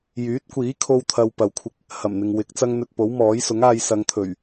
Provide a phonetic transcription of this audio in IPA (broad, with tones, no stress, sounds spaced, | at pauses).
j yː˨˥ t̚ kʷ iː˨˥ kʰ o˧ w t̪ʰ ɐ˧ w p ɐ˨ w kʷʰ ɪ˧ k̚ | h ɐ˨˩ m n̪ ɪ˨ ŋ w ɪ˨˥ k̚ t͡s ɐ˥ ŋ n̪ ɵ˧ t̚ p o˨˥ w m ɔː˨˥ j s ʊ˨˥ ŋ aː˧ j s ɐ˨˧ ŋ t̪ʰ ɵ˨˩ ɥ